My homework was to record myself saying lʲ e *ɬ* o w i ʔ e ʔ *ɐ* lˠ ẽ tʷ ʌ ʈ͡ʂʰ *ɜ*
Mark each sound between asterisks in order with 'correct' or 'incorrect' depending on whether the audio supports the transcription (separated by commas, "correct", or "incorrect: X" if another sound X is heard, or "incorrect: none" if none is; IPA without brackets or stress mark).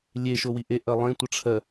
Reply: incorrect: ʃ, correct, correct